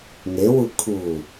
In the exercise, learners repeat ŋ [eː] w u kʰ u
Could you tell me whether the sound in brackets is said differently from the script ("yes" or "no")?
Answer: yes